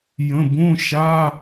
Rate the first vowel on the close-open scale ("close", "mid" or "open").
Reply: mid